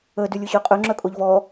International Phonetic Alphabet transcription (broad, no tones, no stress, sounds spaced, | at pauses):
ə d y lʲ ʊ ɕ œ qʼ œ ŋ͡ǁ œ kʼ o ʎ v ɔ